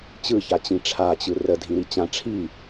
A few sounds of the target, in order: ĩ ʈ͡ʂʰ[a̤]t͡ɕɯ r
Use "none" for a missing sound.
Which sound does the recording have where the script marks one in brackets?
a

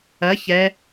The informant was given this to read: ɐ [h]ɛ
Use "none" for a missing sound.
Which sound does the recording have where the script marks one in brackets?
ç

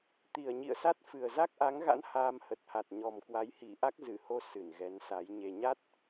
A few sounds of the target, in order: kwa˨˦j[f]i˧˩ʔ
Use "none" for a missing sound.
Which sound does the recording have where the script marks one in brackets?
h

